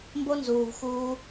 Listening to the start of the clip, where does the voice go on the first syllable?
high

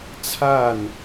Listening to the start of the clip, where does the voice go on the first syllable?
falling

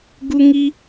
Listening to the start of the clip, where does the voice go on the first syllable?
high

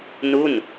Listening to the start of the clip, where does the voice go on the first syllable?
falling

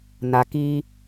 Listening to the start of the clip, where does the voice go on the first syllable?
low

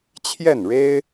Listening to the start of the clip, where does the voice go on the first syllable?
falling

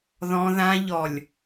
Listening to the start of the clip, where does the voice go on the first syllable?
high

